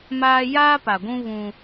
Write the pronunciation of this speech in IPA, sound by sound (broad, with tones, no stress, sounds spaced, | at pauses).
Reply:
m aː˦ j aː˦ p a˨ ɡʷ ũ˦ β ũ˦